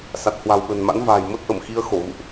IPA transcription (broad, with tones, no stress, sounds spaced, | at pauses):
s a˨˩ t̚ h w a̤˨˩ w ɓ ə̤˨˩ n m a̰˧˥ n v a̤ː˨˩ j m ə˦˥ t̚ ʔ ə˧˩ m x i˧ ə̯ x o˧˩ ɣ ṵ˧˨ ʔ